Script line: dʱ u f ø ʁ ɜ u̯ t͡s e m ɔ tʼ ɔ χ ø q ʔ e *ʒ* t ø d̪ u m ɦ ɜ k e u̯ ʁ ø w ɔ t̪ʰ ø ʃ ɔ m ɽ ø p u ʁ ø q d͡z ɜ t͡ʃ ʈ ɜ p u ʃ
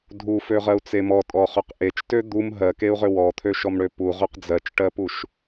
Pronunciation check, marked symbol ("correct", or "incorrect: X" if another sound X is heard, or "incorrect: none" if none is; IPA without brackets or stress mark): incorrect: t͡ʃ